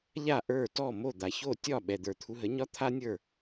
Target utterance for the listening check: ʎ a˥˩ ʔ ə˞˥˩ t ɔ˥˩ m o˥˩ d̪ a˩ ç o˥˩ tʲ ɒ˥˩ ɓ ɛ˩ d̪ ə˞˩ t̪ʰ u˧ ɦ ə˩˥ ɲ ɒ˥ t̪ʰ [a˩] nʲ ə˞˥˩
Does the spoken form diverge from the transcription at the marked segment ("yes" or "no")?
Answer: yes